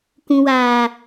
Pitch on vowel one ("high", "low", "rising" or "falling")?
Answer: low